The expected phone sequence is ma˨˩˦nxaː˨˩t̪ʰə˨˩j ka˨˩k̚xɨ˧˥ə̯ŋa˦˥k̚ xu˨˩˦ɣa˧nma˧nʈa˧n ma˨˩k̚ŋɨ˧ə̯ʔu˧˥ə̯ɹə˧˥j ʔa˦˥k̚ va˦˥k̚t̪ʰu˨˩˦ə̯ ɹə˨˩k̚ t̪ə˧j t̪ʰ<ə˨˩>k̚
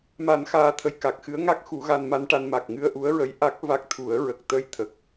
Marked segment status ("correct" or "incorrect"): correct